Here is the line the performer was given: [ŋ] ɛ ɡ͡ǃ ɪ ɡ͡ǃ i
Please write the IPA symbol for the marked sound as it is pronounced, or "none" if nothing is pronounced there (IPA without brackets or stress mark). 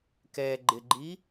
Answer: k